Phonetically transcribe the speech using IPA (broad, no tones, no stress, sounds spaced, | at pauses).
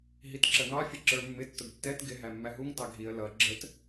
ɦ i t ǁ ə ŋ ɑ fʲ ə ǁ ə˞ mː ɪ tː ʊ ɡ tː ɛ t ɡ ɪ ɦ æ mː æ ɦ u ŋ t ɑ ɡʱ i ə̯ l ʌ ɡ͡ǁ ə t